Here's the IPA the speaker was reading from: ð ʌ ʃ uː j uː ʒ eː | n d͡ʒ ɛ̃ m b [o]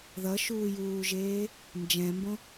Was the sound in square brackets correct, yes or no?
no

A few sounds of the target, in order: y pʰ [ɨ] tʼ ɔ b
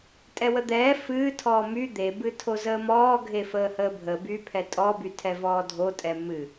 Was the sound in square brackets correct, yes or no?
no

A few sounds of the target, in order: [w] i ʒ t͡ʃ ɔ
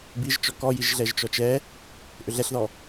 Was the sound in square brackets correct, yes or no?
no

